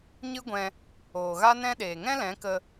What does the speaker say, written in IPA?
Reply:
ɲɨ˦ɡʷɛ̃˧ | oː˨ɣa˦nɛ̃˦ ɗeː˨ŋɛ̃˦lɛ̃˨˦kə˧

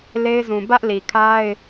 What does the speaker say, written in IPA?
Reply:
le˦ɪ̯zũ˨ bä˦ʔli˨kʰa˦ɪ̯

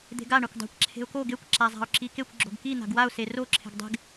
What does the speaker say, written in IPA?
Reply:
d̪e̤ɡa ɳakʷdˤa̤kʷ ǁʰe̤ʊ̯ko ɡekʷ ǁazˤa̤ʊ̯ǁikekʷ ɡ͡ǁo̤ɡki n̪a̤ɡwaʊ̯ sero ǁʰe̤ɡdˤe̤ɡ

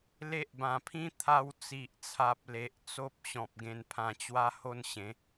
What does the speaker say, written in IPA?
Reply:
le˦ʔbã˧pʰĩ˦ t̪ʰa˧wt͡si˨ʔt͡sʰa˨p̚ le˨ʔ t͡so˦p̚ ɕɔ̃˨p̚ ɡẽ˧npʰã˧t͡ɕwa˦ ho˥˧nɕẽ˨˦

